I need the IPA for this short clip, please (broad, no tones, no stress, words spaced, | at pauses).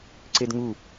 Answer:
ǀedŋu